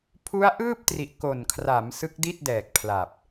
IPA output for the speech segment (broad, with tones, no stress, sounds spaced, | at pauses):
pʰ u˦˥ a̯ ʔ ɯː˥˩ p̚ t r i˨˩ ʔ k o˨˩ n kʰ r a˩˦ m s ɯ˦˥ k̚ d i˥˩ t̚ d ɛː˨˩ k̚ pʰ l a˨˩ p̚